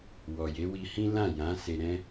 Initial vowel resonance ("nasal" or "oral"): oral